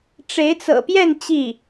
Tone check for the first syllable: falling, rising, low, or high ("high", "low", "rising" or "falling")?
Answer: rising